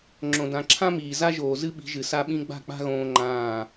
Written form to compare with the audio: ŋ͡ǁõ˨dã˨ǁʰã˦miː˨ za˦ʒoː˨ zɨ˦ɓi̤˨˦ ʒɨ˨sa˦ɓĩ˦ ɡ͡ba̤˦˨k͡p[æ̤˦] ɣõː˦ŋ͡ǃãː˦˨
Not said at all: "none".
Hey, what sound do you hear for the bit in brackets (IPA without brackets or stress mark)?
a̤˦